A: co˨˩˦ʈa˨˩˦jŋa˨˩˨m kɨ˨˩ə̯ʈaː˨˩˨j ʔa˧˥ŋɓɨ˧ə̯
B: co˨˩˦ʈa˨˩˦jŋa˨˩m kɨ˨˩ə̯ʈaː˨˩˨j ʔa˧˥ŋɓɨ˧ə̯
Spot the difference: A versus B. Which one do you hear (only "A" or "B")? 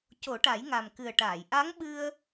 B